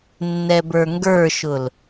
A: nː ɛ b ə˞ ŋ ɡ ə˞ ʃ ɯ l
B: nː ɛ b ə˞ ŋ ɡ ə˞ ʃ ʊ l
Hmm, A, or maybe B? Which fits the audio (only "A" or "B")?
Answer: B